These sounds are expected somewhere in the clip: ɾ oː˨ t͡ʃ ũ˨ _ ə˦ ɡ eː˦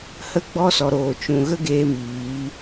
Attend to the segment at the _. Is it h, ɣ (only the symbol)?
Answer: ɣ